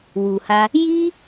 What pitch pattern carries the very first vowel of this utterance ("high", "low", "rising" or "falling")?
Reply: low